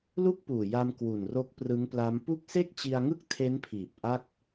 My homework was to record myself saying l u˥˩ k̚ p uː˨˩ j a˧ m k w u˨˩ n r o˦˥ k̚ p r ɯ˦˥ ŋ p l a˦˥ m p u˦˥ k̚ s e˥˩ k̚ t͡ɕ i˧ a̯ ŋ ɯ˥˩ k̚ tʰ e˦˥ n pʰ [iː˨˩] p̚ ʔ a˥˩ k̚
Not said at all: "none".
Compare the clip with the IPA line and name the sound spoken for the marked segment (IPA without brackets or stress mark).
iː˨˩